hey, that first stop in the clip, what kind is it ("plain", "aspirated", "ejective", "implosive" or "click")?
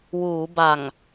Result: plain